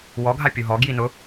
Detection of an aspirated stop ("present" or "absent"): absent